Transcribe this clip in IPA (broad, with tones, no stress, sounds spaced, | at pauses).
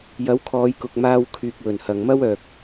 j ɐ˨˥ w kʰ ɔː˨˧ j k ʊ˨ k̚ m aː˥ w kʰ yː˧ k̚ w ɵ˨˩ n h ɐ˨ ŋ m ɐ˥ w œː˨ k̚